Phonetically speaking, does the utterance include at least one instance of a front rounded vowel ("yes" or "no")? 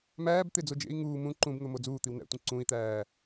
no